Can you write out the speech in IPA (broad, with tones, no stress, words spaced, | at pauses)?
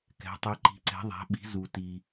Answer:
kɛ̤˩˧tˤi˩˧ ǃi̤˩˧ǀɛ̤˩˧ðˤæ̤˩˧ɓi̤˩˧ zu˩ti˩